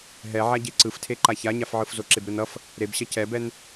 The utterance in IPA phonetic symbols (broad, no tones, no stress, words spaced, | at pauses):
ɦɛ ʕaɟeǀɯftʰe ǃaçaɲafʕɯf zoǁebɾɯnʌf | ɾebɕʌ cɛbɛn